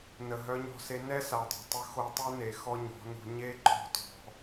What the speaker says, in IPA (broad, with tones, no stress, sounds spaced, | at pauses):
n ə˨ ɦ œ˧ ɲ ɔ̤˧ s e˧ n ɛ˦ s a˨ dˤ ṳ˨ tˤ ə˧ x o˧ tˤ u˦ n e˨ x ɔ˦ ɲ ɔ̤˨˦ n ṳ˧ ɲ e˦ ǃ ɔ̤˦˨ t ɔ̤˧